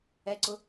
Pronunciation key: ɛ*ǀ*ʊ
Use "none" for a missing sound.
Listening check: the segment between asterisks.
ǀ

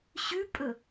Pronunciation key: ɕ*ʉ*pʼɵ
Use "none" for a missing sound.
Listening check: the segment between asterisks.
ʉ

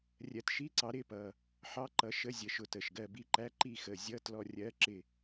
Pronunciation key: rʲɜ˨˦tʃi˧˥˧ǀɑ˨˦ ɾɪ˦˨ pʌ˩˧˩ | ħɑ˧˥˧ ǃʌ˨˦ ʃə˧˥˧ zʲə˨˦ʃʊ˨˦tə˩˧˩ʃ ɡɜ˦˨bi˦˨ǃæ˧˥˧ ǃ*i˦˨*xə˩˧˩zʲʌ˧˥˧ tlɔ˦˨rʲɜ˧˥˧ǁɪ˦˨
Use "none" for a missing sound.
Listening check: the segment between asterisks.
i˦˨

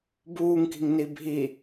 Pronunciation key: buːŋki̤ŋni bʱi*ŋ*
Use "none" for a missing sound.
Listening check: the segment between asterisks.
none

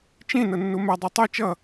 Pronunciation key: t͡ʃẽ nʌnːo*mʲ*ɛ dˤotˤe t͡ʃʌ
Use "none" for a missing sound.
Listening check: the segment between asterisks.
m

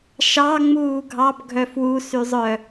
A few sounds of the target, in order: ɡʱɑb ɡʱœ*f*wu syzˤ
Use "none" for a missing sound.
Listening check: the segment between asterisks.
f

